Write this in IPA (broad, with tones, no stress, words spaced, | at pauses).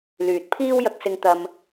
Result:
lyː˨t̚pʰiː˥w jɐ˧k̚sɪ˧ŋ t̪ɐ˧m